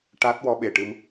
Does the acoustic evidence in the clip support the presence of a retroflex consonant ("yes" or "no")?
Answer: yes